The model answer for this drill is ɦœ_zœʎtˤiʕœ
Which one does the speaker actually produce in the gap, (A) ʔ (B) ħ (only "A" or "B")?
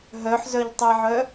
B